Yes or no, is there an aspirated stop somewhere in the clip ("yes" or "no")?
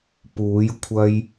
yes